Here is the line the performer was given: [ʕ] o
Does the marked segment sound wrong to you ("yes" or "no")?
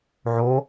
no